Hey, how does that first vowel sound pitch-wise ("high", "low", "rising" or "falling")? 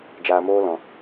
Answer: low